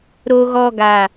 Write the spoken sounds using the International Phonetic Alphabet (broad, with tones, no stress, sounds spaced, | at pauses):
ɾ o˨ ɣ ɔ˨ ɡ aː˨